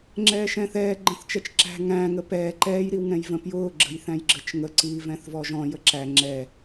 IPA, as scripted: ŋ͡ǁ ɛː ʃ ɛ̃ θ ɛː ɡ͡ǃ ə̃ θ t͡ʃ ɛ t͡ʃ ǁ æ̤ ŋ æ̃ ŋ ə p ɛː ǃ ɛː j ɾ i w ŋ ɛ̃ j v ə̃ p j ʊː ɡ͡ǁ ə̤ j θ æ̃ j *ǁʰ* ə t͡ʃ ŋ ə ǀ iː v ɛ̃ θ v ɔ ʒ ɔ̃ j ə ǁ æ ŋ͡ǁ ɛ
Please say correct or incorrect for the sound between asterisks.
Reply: incorrect: ɡ͡ǁ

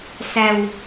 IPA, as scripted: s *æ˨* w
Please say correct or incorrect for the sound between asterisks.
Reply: correct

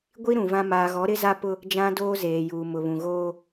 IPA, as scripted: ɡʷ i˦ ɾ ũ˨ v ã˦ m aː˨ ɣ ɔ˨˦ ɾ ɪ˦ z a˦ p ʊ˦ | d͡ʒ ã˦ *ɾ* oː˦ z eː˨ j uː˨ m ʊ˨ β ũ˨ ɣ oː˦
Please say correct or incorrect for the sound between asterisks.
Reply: incorrect: d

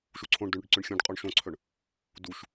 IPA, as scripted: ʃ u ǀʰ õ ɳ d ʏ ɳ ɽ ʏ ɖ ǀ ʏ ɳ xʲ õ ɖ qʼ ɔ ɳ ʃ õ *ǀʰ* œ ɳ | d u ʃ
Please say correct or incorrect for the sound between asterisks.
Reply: correct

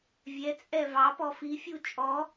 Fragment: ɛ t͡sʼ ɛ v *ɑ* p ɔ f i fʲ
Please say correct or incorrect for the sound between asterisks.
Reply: correct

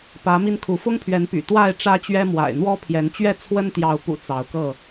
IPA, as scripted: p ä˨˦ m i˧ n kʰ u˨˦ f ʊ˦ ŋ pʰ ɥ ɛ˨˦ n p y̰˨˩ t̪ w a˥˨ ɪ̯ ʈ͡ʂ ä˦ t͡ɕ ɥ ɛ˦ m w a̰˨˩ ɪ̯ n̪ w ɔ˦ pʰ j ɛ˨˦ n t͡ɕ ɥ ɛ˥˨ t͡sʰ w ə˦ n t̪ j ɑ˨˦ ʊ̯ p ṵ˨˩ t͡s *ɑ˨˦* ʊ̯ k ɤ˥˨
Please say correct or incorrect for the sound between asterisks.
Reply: correct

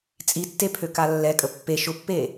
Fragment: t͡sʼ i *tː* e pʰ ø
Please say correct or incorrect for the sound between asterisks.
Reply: correct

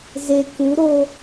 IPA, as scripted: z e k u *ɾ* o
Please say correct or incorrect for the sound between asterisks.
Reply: correct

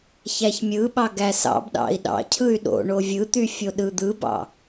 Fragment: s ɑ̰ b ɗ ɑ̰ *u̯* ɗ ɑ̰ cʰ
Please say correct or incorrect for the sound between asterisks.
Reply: incorrect: i̯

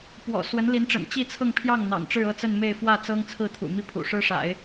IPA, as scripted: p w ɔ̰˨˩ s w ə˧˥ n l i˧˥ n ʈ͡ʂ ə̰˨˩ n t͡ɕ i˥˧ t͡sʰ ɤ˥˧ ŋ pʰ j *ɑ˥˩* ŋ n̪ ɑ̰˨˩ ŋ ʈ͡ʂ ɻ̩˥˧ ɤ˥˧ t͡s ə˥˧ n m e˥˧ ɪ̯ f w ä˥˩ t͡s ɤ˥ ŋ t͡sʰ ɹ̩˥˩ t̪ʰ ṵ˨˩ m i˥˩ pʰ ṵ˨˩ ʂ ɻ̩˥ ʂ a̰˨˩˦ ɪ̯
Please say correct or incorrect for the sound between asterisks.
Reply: correct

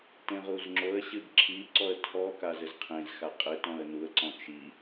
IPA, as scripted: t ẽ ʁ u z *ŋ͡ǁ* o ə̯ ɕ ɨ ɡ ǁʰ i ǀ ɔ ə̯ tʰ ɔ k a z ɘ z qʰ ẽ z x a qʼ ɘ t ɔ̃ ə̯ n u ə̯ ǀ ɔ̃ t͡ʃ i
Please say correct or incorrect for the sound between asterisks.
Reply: correct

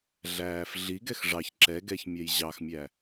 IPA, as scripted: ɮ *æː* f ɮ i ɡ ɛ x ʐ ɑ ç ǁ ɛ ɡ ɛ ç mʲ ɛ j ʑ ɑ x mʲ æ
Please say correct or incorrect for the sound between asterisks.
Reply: correct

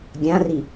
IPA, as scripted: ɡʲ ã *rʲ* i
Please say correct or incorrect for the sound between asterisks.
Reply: incorrect: r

